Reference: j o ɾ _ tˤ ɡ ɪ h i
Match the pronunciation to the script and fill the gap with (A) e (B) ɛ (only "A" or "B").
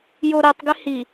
B